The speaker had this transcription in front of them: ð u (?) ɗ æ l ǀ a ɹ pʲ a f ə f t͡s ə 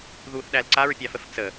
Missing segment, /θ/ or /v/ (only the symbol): θ